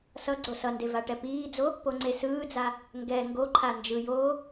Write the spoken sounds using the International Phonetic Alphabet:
s ʌ ɡ͡ǀ o s ʌ n d e v a ʈ ɛ p iː d͡z o | p o ŋ͡ǀ e s ɯː d͡z a | ŋ ɡ ɛ ŋ ɡ o ǃʰ a n d͡ʒ ɯ j oː

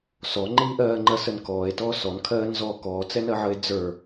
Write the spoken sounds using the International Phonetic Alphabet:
s ɔ ŋ͡ǃ iː ʔ ɜː ŋ͡ǃ ɜ s ə n k ɔː e̯ t ɔː s ɔ n kʰ ɜː n z ɔː k ɔː t͡s ɛ n ɜ ʕ ə e̯ d͡z ə˞

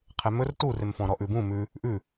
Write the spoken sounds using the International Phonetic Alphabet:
qʰ e m ɵ r t u r e m f ɔ̃ ɾ ɔ ʔ ʉ b ũ m ʉ | ʔ ʉ

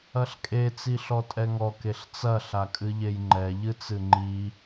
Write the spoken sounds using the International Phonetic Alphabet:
ɐ ɬ kʼ e t͡s i ɬ ɔ tʼ ɛ ŋ ɔ k e ɬ t͡s ɐ ɬ a kʼ ɨ ʎ e j ŋ͡ǃ ɛ ʎ ɨ t͡s ɨ ŋ͡ǃ i

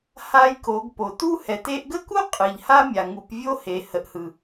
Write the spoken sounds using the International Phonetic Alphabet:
h a˧ j k o˩˧ ɡ p o˩ t u˥ h ɛ˩˧ t e˧ ʔ ɡ ə˥ k u˥ qʼ ɯ˩ ʎ h a˥ mʲ a˩ ŋ u˩˧ p vʲ o˥ h e˩˧ h ə˩˧ ʔ h ɯ˩

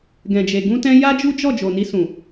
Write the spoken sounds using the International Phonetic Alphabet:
ɡ ɛ̃˨ d͡ʒ e˨ ɡ ũ˧ t ɛ̃˧ j a˦ d͡ʒ u˦ d͡ʒ ɔ˦˨ d͡ʒ o˨ n i˧ s ũ˨

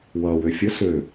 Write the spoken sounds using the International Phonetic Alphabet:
w ʌː w ø fʲ ə s ø

